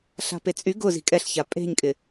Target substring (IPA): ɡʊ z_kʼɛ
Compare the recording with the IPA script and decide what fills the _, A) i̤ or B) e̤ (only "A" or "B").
A